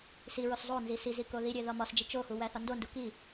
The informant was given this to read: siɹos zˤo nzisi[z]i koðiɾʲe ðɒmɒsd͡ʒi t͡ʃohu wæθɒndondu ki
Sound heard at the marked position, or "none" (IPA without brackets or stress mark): z